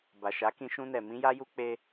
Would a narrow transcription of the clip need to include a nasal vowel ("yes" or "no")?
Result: yes